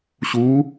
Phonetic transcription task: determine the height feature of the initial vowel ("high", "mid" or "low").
high